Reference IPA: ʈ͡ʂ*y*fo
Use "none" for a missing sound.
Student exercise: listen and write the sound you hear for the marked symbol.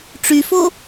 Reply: y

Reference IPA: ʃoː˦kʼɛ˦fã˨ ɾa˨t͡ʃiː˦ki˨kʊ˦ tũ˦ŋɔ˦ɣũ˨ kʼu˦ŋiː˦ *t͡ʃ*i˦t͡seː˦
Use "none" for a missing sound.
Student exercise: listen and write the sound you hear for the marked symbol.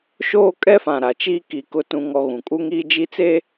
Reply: d͡ʒ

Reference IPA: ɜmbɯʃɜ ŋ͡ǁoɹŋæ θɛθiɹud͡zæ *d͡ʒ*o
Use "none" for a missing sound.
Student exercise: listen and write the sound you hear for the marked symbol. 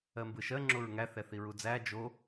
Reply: d͡ʒ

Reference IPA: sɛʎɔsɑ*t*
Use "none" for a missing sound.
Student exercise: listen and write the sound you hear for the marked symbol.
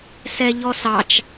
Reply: t͡ʃ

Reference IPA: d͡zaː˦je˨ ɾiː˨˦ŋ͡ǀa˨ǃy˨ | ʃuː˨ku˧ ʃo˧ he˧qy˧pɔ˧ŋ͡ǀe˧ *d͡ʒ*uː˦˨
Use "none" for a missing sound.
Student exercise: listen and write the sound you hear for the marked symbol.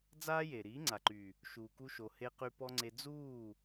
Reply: d͡z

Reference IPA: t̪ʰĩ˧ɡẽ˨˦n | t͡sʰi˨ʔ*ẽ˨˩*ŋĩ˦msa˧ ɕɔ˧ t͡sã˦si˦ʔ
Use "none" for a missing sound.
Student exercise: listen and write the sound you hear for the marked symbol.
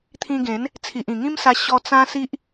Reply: ĩ˨˩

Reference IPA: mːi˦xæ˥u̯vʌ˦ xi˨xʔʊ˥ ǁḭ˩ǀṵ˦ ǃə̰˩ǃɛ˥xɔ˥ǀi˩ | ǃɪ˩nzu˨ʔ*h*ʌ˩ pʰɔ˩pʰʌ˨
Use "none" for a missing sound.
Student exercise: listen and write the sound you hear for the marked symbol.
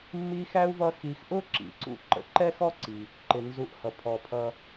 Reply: h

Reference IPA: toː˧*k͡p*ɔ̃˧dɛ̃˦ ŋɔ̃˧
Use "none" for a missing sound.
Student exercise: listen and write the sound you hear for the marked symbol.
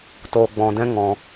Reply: ɡ͡b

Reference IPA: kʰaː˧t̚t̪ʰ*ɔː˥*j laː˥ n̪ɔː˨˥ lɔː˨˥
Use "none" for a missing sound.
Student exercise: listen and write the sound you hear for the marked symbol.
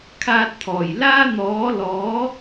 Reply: ɔː˨˩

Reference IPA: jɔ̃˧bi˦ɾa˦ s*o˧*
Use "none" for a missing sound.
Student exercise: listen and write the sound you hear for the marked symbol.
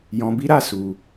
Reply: u˧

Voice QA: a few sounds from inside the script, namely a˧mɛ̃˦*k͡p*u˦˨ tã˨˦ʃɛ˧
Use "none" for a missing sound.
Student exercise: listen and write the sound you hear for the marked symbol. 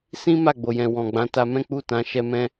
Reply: k͡p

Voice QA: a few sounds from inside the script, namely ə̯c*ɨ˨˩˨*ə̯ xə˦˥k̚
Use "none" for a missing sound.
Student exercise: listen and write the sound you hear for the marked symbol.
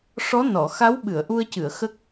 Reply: ɨ˨˩˨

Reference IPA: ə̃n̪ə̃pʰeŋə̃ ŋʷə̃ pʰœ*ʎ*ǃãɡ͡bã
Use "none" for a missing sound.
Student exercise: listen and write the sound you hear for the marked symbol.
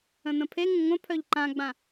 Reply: ʎ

